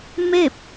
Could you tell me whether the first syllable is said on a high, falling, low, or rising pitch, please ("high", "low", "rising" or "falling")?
falling